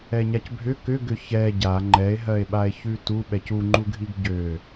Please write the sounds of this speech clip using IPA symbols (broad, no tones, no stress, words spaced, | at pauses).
ɛɲacbʱʏ kʏ ɡʏçɛ ɟa ŋ͡ǃɛe̯ɦɜe̯ɓae̯ çʉtu ɓɛcuŋ͡ǃuɡʱiɡ ɟø